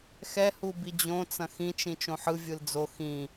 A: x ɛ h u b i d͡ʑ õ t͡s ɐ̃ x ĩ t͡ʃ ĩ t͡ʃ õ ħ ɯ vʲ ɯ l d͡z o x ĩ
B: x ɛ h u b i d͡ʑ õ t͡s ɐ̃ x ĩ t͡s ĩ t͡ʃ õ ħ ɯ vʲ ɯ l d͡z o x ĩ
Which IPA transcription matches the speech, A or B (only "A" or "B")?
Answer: A